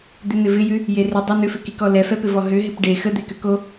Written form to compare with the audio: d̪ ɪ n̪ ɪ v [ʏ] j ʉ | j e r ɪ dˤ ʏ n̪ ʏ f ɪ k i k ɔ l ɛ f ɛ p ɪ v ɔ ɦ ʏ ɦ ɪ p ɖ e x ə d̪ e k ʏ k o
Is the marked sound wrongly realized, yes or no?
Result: yes